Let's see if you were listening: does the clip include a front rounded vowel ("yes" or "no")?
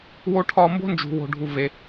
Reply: no